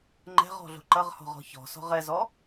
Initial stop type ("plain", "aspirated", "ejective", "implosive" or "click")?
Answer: click